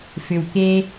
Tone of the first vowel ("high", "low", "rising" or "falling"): low